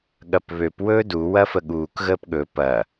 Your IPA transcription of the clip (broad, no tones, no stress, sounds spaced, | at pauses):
ɠ ɐ p β ø p w ɵː d u w ɐ f ə ɠ uː k ɣ əː p ɠ ɵ p ɐ